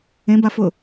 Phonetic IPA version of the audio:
ẽbafʊ

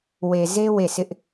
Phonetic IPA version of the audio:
we˨ze˦ we˦˨sʰɪ˦ʔ

